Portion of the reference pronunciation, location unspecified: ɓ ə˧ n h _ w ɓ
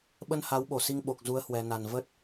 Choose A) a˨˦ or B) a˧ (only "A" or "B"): A